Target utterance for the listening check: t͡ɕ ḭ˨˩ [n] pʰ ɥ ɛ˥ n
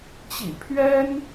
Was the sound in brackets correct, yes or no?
no